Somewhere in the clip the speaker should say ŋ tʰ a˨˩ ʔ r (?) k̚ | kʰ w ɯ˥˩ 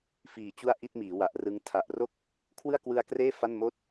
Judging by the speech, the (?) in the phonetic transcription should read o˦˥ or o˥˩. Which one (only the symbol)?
o˥˩